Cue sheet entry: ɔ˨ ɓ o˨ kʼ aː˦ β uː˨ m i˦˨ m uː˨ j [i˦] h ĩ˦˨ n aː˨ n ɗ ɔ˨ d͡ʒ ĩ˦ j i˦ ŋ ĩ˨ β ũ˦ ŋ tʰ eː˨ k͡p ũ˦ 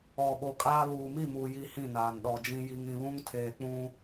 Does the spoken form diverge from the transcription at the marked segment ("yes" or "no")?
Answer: no